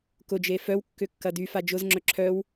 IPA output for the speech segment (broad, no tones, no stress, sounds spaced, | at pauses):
k ʊ d͡ʒ e f œ w kː ʏ kː ɐ d y f a d͡ʒ ʊ z ŋ͡ǁ œ ǁʰ œ w